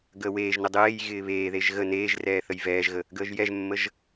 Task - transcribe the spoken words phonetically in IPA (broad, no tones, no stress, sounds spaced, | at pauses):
ɡ əː w eː ʒ n ə dˤ eː j ɣ ɪː β eː ð e ʒ ɣ ə n eː ʒ r ɛː θ ə j v ɛː ʒ ɣ ə | ɡ əː ʒ j ɛ ʒ mː ə ʒ